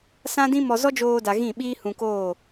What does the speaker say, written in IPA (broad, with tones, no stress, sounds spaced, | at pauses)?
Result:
s ã˦ d ĩ˦ m ɔ˧ z ɔ˦ d͡ʒ oː˧ d a˨ ɣ ĩ˦˨ ɓ iː˦ h ũ˧ k oː˦˨